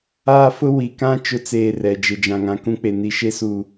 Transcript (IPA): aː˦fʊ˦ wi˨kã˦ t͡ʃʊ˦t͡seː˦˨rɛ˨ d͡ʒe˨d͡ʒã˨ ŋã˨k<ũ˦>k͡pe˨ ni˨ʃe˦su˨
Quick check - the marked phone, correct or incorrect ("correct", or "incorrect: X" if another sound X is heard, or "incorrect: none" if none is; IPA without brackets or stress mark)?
correct